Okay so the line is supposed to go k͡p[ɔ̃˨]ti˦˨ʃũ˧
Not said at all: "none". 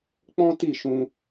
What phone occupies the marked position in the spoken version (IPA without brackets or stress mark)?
ɔ̃˦